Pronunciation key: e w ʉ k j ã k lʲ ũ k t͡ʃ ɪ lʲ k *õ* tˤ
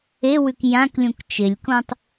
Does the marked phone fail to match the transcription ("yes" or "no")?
no